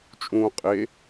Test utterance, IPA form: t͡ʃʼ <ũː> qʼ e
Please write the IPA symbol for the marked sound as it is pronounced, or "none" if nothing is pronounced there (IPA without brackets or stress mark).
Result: ũː